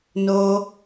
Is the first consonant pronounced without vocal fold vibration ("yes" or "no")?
no